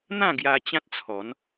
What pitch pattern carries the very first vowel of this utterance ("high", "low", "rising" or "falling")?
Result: falling